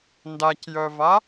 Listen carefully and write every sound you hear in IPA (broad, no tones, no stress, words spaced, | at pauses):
ndacjœva